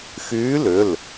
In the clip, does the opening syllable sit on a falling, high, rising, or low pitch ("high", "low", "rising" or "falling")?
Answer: rising